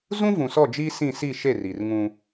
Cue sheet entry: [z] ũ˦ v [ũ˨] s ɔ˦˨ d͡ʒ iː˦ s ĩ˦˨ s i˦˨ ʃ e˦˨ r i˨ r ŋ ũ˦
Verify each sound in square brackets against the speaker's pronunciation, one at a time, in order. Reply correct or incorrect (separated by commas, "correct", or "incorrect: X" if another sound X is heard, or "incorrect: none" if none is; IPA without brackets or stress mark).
correct, correct